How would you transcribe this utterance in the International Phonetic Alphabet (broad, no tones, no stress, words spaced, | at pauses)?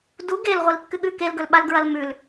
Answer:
du ɡel ʁʷilkːɨɠʉ kelɡɵlɓal ɡɹɐlmʉl